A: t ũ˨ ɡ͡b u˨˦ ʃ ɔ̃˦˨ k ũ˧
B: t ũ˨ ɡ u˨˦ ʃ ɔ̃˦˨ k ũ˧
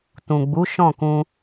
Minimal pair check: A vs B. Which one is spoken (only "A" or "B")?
A